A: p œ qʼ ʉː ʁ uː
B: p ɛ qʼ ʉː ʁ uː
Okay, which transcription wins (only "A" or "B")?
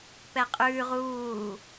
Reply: B